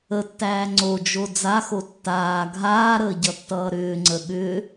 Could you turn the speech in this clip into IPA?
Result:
ə tː æː ŋ͡ǀ o d͡ʒ o d͡z a x o tː aː ɡʱ aː ɾ əː ɟ ʌ tː ʌː ɾ ʏː ŋ͡ǀ ə ɠ ʏː

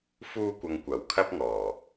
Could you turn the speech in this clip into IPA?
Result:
f uː˧ kʷ ɐ˨ ŋ kʷ ɐ˨˩ w kʰ ɐ˧ p̚ ŋ ɔː˨˩

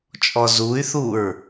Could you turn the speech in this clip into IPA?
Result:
t͡ʃʼ ɔ z u y̯ θ u ɹ

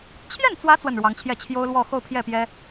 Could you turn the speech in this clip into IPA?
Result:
t͡ɕʰ j ɛ˥˩ n t͡s w ä˧˥ t͡s w ə˥˩ n ɻ w ɑ˧˥ ŋ t͡ɕʰ j ɛ˥˩ t͡ɕʰ j o˥ ʊ̯ l w ɔ˥˧ x o˥˧ ʊ̯ pʰ j ɛ˥˩ p j ɛ˥

